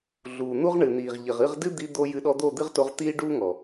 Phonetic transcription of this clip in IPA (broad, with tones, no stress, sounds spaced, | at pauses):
ɮ uː˨ n̪ u˦ ʁ ɳ ɨ˨ n̪ iː˨ ʁ ʎ ɘ˨ ʁ ɨ˦˨ ʁ d ɨ˦ d̪ i˧ d̪ o˦ j ɨ˧ ɗ ɔ˧ d̪ o˦˨ d̪ ɨ˦ ʁ t o˧ ʁ t̪ iː˦ ɖ uː˦ ŋ ɔ˨